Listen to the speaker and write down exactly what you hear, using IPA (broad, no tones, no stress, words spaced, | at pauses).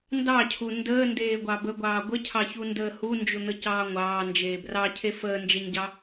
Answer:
ndɑcʰu ndəːndeːɡʷɑ bəɡʷɑː ɡʷəcʰɑçundəː hund͡ʒun̪əcɑː ŋʷɑːnd͡ʒeː brɑcʰe fəːnd͡ʒeɲɟɑ